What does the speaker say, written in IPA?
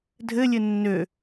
dʱ ɘ lʲ ɘ nː ø

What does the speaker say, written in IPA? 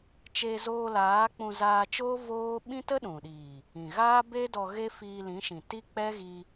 t͡ʃ e˧ z oː˧ l aː˨˦ k͡p ũ˧ z aː˧ t͡ʃ oː˦ v oː˦ ɓ ĩ˦ t ə˦ ɗ ũ˨ ɗ iː˨ | ĩ˨ ɣ aː˦ b e˦ d ɔ˧ ɣ e˦ f iː˧ l ĩ˨˦ ʃ ĩ˨ t i˦ k͡p ɛ˦ ɣ i˧

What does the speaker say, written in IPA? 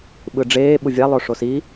ɓ ɯ ɖ͡ʐ eː ɓ u vʲ a lˠ o ʂ o s i

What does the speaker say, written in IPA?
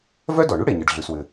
v œ˥ d ɔ˩ ɳ y˥ ɽ e˩ ɲ ɘ˩ ɖ ɮ ʉ˩ s w ɘ˩

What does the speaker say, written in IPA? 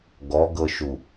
ɡ ɔ ɡ ɤ ʃ u

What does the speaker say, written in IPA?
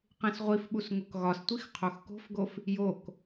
q ẽ s ʁʷ i f ɓ u s ŋ o k ɣ ɒ s tʷ i x qʰ o x k o̤ f ɡ o f | j o k

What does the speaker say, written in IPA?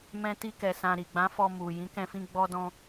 m ɛ̃˧ t i˧ k ɛ˨ s ã˨ ɾ i˨ ɡ͡b ã˨˦ f ɔ˧ m u˨ j ĩ˨˦ k ɛ̃˧ f ĩ˧ ɡ͡b ɔ˧ d ɔ̃˧

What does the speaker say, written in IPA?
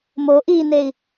m o ʔ i n e i̯

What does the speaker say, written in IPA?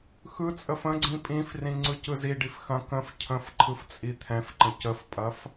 x ɯ t͡sʼ ə f ə̃ ɡ͡ǀ ĩ pʼ ĩ f r ĩ ŋ͡ǀ ɯ c ɯ z i ɖ i f x ɐ̃ k ə̃ f cʰ ə̃ f ǃʰ ɯ f t͡sʼ i t̪ʰ ɛ̃ f ǃ ə̃ c ə f pʼ ɐ f

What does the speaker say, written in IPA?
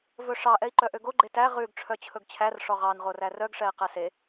v ɵ ʂ ɑ ʔ ɛ i̯ ǃ œ ʔ ø ɡ o ɡ͡ǃ e t æ ʁ ʉ ɡ ʈ͡ʂʰ œ t͡ɕʰ ɵ ɡ t͡ɕʰ æ r ʂ ɔ ʁ ɑ n ʁ o r æ r œ ɡ ʂ ɛ i̯ q ɛ s e

